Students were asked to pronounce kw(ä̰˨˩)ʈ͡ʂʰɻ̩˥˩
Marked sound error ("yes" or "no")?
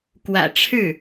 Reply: no